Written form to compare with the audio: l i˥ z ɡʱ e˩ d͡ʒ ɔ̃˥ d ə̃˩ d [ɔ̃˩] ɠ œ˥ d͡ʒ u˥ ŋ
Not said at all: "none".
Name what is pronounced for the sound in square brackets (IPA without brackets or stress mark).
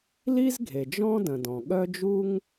ɔ̃˩